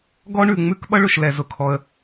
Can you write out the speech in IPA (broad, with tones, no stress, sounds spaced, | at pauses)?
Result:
ɡ ɔ˥ ɳ ʉ˩ ŋ͡m ʉ˥ k ɓ ʌ˥ ɭ ʊ˩ ʃ l ɛ˩ z ʊ˩ kʰ ɔ˩ ə̯